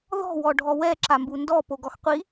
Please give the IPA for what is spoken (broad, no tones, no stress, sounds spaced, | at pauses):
ð ɔ̤ w ɔ ɖʱ ɔ w ɛ ǁ a m b u n d ɔ p o ɡ ɔ x qʷ i